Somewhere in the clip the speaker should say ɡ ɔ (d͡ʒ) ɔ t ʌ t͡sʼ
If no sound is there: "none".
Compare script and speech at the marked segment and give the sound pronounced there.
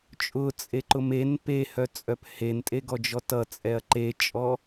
d͡ʒ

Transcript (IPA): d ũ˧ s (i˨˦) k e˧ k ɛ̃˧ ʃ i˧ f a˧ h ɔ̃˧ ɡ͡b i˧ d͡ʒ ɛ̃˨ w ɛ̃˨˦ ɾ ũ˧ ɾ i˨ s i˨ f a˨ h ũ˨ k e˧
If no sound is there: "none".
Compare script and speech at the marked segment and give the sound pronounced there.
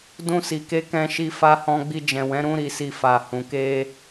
i˨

